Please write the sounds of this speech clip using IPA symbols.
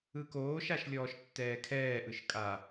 ɯ k oː ʃ a ʃ lʲ ɔː ʃ tː ɛː kʰ ɛː ʔ ɯ ʃ kʼ a

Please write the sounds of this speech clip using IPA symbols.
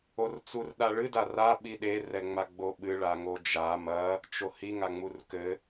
o r t͡s u r ɗ a ɭ ɨ d a r a ɓ i ɗ e r ɛ ŋ͡m a ɡ͡b o ɓ ɨ ɭ a ŋ o d͡ʒ a m ɐ | t͡ʃ o h i ŋ a ŋ͡m u r k ɘ

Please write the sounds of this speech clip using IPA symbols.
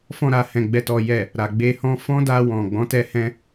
f ɔ̃˧ ɾ a˨ h ɛ̃˨ ɡ͡b ɛ˨ t ɔ˨ j ɛ˨ | ɾ a˨ ɡ͡b e˧ h ɔ̃˦ f ɔ̃˦ d a˧ w ɔ̃˨ ɡ͡b ɔ̃˨˦ t ɛ˧ h ɛ̃˧

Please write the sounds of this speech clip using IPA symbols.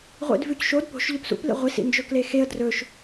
ʁʷ ḭ d v ʉ c ʃ o d p o̤ ʃ ʎ ɵ p s ṵ p l ḭ ʁʷ i s ḭ n d͡ʒ ɵ k l e x e ə̯ d r ɵ ʃ

